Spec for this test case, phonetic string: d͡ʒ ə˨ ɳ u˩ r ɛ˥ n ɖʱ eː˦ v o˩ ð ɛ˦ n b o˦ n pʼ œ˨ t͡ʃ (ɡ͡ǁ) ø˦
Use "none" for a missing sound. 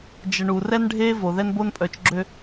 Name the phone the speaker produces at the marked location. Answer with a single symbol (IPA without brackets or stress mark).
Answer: ɡ͡ǁ